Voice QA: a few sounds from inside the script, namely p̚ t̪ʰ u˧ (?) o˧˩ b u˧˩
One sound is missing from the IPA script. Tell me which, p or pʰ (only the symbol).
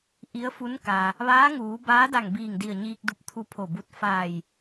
pʰ